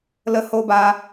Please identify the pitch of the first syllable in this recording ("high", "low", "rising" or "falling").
high